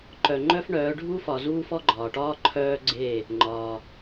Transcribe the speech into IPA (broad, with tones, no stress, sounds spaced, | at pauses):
ǃ œ˨ ŋ͡ǃ œ˦ f ɳ œː˨˦ ɖʱ u˦ f ɒ˨ z uː˦ f ɔ˦ ɡ͡ǃ ɒː˨ ʈ ɒː˦ ǃʰ œː˦ ɡ͡ǀ e˦˨ | ŋ͡ǃ ɒ˦